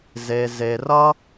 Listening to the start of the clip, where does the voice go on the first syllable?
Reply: low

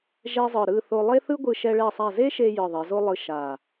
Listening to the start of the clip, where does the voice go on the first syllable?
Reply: high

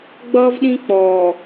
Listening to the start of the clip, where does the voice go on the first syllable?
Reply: high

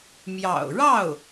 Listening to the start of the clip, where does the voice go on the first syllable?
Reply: low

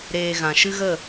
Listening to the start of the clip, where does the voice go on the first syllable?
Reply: low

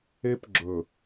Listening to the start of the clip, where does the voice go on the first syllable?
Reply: high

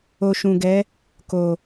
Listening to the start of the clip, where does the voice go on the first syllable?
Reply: low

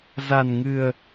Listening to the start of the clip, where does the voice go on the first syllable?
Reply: low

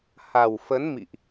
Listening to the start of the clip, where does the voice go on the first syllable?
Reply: low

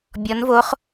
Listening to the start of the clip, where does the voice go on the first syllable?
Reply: rising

